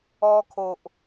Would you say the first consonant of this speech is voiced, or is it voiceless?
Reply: voiceless